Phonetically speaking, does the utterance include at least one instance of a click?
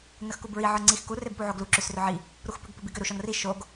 yes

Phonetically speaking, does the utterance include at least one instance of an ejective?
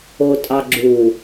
yes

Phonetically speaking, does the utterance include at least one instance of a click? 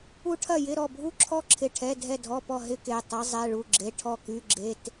yes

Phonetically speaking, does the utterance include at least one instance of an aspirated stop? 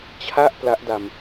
yes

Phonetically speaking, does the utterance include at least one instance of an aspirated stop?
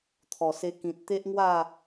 yes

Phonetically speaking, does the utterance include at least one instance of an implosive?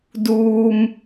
no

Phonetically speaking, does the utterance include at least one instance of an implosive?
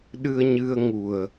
yes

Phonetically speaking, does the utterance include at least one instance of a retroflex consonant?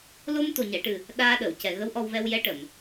yes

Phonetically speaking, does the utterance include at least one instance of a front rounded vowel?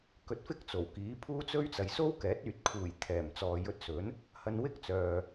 yes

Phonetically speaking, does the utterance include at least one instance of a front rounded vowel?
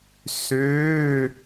yes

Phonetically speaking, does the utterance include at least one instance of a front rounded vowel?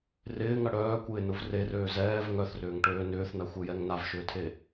yes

